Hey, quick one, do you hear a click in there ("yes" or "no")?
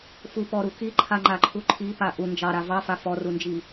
yes